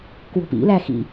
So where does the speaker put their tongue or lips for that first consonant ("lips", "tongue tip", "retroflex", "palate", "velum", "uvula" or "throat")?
velum